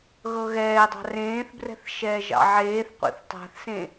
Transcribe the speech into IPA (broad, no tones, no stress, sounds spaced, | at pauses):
ɣ ɤ ɣ ɛː dˤ ɑ̤ r ẽː θ b r ɛ̤ θ ʃ ɛː ʒ ɑ̰ ʕ eː θ qʷ ḛ θ tˤ a̤ θ s ẽ